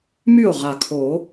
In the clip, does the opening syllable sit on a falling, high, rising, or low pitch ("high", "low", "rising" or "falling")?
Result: falling